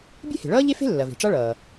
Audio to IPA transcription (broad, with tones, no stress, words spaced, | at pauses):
bʲe̤˥he̤˩ɭʌː˥ ʎe˥fe̤˥lːɐ˩ ve̤˩ʈ͡ʂa˥ɭʌː˩